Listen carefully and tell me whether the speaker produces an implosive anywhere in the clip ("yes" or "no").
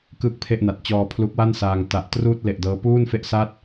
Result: no